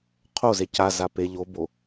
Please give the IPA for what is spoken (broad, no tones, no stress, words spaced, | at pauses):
qʰoze caza pe ʎobo